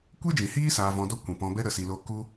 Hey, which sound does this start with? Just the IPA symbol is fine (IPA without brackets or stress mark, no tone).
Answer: kʷ